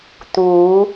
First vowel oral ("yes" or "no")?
yes